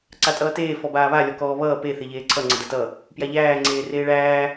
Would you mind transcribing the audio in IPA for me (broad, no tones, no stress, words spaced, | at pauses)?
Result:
ǀatʼʌːteː fɔbaːβa lʲɔkɔːβʌː pe θeʎeːǀʰʌ ŋ͡ǀʌdatʌ | pjaʎæː ŋ͡ǀeːreːɭæː